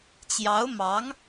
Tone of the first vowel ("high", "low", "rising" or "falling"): rising